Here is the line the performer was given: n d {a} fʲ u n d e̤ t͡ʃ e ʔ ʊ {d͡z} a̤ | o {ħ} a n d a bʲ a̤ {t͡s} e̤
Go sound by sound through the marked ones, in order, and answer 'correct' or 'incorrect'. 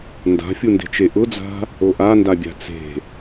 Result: incorrect, correct, incorrect, correct

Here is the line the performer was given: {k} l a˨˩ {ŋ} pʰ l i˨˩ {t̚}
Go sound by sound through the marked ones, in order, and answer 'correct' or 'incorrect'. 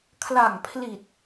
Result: incorrect, correct, correct

